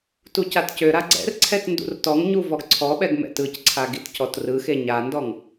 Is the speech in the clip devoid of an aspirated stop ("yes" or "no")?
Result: no